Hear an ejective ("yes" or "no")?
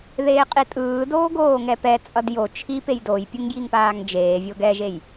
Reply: yes